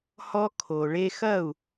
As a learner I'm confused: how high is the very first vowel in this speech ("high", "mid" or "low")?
mid